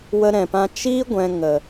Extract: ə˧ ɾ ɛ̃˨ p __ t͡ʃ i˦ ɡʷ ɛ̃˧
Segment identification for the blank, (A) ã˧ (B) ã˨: A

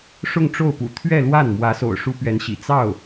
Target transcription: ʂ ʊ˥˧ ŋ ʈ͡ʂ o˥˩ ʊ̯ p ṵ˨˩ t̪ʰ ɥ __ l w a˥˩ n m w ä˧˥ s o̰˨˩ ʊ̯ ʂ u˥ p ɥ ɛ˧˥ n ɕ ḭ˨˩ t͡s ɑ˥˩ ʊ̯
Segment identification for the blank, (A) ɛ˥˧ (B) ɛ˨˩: A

